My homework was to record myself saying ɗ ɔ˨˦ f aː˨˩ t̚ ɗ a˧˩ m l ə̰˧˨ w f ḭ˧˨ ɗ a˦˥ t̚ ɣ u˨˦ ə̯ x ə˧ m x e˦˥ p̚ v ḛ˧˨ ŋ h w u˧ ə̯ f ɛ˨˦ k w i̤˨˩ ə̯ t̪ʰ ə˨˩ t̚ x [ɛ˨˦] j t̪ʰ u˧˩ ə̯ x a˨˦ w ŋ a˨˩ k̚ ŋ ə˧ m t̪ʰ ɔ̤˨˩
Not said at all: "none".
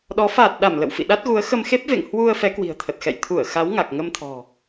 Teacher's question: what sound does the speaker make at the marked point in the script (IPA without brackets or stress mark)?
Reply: ɛ̰˧˨